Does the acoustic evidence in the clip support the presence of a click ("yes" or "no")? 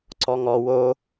yes